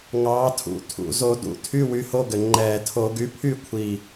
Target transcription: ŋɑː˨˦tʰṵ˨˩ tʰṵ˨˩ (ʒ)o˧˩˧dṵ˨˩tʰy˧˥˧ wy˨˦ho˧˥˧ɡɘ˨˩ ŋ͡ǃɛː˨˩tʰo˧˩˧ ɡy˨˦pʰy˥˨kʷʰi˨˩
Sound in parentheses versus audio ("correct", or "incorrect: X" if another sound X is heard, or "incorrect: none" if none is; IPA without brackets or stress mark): incorrect: z